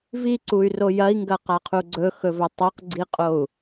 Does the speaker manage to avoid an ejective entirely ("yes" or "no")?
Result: no